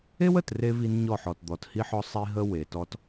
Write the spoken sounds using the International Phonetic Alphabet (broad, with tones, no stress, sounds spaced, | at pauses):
e˦ w ə˨ t r e˦ v i˦ n ɲ ɔ˦˨ ħ ɔ˨ t d̪ ɔ˨ t h i˦ ħ ɔ˦ sˤ i˦ ɦ ə˦ w e˨ t ɔ˦ t